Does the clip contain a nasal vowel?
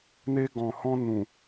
yes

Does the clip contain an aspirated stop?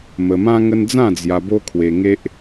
yes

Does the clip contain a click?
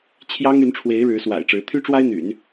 no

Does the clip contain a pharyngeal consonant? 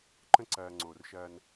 no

